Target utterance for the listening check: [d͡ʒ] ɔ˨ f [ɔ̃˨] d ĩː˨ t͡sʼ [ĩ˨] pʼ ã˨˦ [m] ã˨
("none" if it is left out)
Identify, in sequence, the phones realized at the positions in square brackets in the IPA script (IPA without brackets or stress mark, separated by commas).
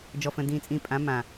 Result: d͡ʒ, ə̃˨, ĩ˨, m